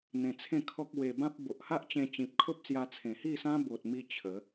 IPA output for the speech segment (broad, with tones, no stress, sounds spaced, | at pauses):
n̪ ẽ˧ t͡sʰ ẽ˥˧ kʰ ɔ˦ k̚ w e˧ b ã˦ p̚ b o˨ ʔ h a˦ ʔ t͡ɕ ẽ˧ t͡ɕ ĩ˨ p̚ kʰ o˦ p̚ s j a˧ t͡sʰ ẽ˨˩ h i˥˧ s ã˦ b o˨ t̚ m i˧ t͡ɕʰ ə˨˦